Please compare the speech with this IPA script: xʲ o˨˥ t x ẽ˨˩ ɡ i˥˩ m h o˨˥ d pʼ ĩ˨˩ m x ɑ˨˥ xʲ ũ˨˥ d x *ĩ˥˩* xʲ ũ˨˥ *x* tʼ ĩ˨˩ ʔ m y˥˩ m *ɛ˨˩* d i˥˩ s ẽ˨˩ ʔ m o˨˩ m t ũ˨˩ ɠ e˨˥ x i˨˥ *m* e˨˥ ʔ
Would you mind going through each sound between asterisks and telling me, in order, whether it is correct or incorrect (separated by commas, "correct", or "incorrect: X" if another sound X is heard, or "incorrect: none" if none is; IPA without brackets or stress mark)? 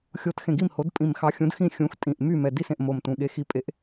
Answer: correct, correct, correct, incorrect: pʼ